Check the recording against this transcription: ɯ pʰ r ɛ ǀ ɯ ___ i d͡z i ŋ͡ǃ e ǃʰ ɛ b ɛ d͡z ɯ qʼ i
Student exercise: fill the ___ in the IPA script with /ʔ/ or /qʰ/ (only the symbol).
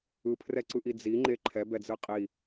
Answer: ʔ